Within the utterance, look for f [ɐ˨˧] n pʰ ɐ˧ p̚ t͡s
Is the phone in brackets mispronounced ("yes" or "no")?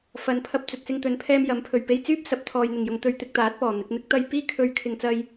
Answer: no